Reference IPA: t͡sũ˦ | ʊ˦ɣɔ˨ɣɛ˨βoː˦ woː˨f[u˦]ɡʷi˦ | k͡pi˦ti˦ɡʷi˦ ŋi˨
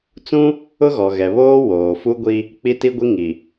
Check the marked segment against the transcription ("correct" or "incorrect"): correct